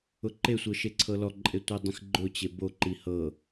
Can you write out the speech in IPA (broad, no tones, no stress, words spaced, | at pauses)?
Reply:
ʊǃesʷɤ ʃeǀʰɤlɔǃʼe tʷidˤĩxɡ͡ǃʊt͡ɕe boǃi hɤ